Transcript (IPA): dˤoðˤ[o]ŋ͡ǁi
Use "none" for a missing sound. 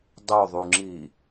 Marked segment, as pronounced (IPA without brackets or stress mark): u